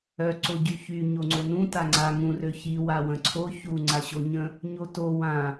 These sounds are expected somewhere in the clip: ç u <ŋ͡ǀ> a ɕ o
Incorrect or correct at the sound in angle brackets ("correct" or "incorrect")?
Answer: correct